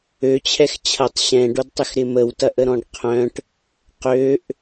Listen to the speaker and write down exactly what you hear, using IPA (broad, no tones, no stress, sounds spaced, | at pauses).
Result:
ø t͡ɕʰ ɛ x t͡ɕʰ ɐ tˤ ɕ ɛ̃ ɖ o d tˤ ɪ x ɾ ɪ m ə w t ɐ ʔ ə ɾ ɔ̃ ɖ qʰ œ̃ ʈ | q ø ʔ